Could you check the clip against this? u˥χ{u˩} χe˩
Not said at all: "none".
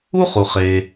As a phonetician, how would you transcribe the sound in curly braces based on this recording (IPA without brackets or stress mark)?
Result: u˩